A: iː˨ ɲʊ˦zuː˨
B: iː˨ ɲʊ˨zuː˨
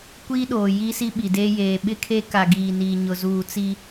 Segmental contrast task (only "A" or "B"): B